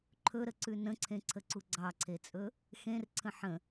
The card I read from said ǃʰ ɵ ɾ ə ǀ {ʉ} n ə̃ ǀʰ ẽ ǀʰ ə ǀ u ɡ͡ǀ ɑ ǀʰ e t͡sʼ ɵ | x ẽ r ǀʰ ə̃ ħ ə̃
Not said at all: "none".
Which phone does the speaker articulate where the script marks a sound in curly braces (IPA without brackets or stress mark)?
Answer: ʉ